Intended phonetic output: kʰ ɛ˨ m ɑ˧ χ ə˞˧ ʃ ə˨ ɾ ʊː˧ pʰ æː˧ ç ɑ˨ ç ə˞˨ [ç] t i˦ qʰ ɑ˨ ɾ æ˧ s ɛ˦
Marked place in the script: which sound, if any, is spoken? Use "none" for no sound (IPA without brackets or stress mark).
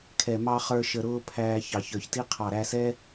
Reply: ç